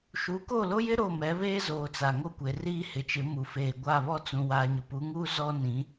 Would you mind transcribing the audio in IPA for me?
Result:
ʃ u˨˦ k o˦˨ l o˦ j ɪ˦ ɾ o˦˨ m ɛ˨˦ β eː˦ z oː˨ t͡s a˨ ŋ o˦ kʷ e˨ r iː˦ h ɪ˨ t͡ʃ ɪ˨˦ m u˨ f eː˨ ɡʷ a˦˨ β ɔ˦ t͡s ũ˨ w aː˨ ɲ ʊ˨ p u˨˦ ŋ uː˦ z ɔ˦ n ĩ˨˦

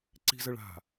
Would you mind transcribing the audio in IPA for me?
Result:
ǀ i̤ z ə ɭ a̤

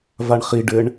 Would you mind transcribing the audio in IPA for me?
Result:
v a ɳ χ i ɖ ɘ ɳ

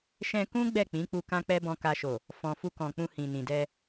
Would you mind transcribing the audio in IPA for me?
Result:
ʃ ɛ̃˧ k ũ˦ ɡ͡b ɛ˦˨ k͡p ĩ˨˦ k͡p u˧ k ã˦ k͡p ɛ˦ b ɔ̃˧ k a˧ ʃ o˨ | f ɔ̃˨ f u˧ k ɔ̃˨ k͡p ũ˧ h ĩ˨ n ĩ˨ d ɛ˧

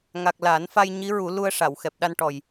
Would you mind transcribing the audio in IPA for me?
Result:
ŋ a˨˩ k̚ l a˨˩˦ n f a˧ j ɲ i˧˥ ɹ u˨˩˦ l u˧ ə̯ ʂ a˨˩˨ w x ɛ˨˩ p̚ ɗ a˧ n ʈ ɔ˨˩ j

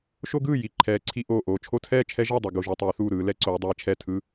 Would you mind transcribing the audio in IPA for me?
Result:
ʃ o˦ ɡ ɯː˥˩ j i˦ ǃʰ ɛː˨˦ ǀʰ i˦ ʔ oː˥˩ ʔ oː˥˩ t͡ʃʰ o˦ tʰ ɛː˥˩ t͡ʃʰ ɛ˦ ʒ ʌ˥˩ dˤ ɛ˦ ɡ o˦ ʒ u˨˦ tˤ ɛː˨˦ θ uː˥˩ ɾ ɯː˨˦ l ɛ˦ ǀ oː˨˦ dˤ ɛː˨˦ t͡ʃʰ ɛ˥˩ tʰ ɯ˦

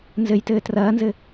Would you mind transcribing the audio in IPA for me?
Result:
n z ɘ j t ɘː t r ɐː n z ɘ

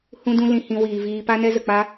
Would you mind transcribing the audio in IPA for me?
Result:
h ũ˦ d ũ˦ l ĩ˧ h ĩ˧ w iː˨ v iː˧ p a˦ n ɛ˦ z ə˨ k͡p a˦

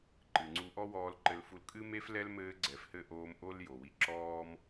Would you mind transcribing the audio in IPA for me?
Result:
ǃ ɨ˨ ŋ͡ǀ u˧ ʔ ɔ˦ w ɔː˧ l ǃ ɘ˧ l f u˧ l kʼ ɨ˦ m e˦ f l ɛ˦ l m ɘː˧ ɡ͡ǀ ɛ˨ f h ɘ˦˨ ʔ oː˧ m ʔ o˦ l j o˨ w i˧ ǁ ɔː˦ m

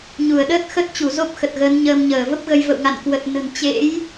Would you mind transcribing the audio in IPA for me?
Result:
ɲ u˧˩ ə̯ ɗ əː˦˥ t̚ x ə˦˥ t̚ t͡ɕ u˧˩ z o˦˥ p̚ x ə˨˩ t̚ ɣ əː˨˦ n ɲ əː˧ m ɲ əː˧˩ v ə˦˥ p̚ ɣ ə˧ j v ə̰˧˨ w ŋ a̰˧˨ n k w ə˨˩ t̚ n ə̤˨˩ n t͡ɕ ḛ˧˥ j

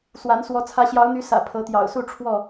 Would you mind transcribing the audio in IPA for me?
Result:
s w a˨˦ n s w ɔ˨˦ t͡sʰ ä˨˦ ɕ j ɑ˨˦ ʊ̯ n̪ y˨˦ s ä̰˨˩ pʰ ɤ˨˦ t̪ j ɑ̰˨˩ ʊ̯ s u˥˨ ʈ͡ʂʰ w ɔ˥˨

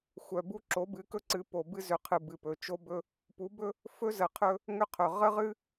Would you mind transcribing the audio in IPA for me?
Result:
xʷ œ˨ b u˦ ǁ o˨˦ b ɨ˨˦ k ɵ˦ ǀ ɨ˨˦ p o˨ b ɨ˦ z ʏ˨ qʰ ɨ˨ b ɨ˨ p ɵ˨ t͡ʃ o˦ b ɵ˦ | p u˨˦ b ɵ˦ | f ɵ˦ z ə˨ qʰ ɵ˦ | ŋ ʏ˦ qʰ ɵ˨ ʁ ə˦ ʁ ɨ˦

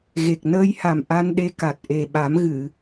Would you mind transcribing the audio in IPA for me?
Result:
ɣ e˨˩ k̚ n əː˧ j h a˨˩ m ʔ a˧ n ɗ e˧ k a˨˩ t̚ ʔ e˨˩ ɓ a˨˩˦ m ɣ ɨ˨˩˨

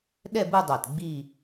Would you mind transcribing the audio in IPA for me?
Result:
ɗ ɛ˥˧ b ɯ˥˧ dˤ a˧˩ t ɡ͡b i˥˧

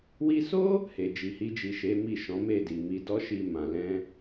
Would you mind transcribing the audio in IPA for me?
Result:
w i˧ s o˦ | h e˨ d͡ʒ i˨ h i˧ d͡ʒ i˨ ʃ e˨˦ m i˦˨ ʃ ɔ̃˨˦ m e˦˨ d i˨ m i˧ d ɔ˦ ʃ i˧ m ã˨ l ɛ̃˧

